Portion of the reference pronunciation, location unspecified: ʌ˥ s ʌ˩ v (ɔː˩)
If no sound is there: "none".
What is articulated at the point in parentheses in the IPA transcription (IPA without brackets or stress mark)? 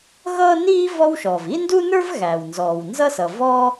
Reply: ɔː˥